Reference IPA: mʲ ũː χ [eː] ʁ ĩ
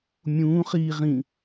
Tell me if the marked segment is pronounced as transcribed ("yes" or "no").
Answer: no